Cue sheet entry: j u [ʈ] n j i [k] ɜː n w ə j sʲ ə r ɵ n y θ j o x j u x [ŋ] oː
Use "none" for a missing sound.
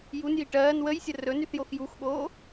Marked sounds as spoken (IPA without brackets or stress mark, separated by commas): none, ʈ, ɠ